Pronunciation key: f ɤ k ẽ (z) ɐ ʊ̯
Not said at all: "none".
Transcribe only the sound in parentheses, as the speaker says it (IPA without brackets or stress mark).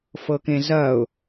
z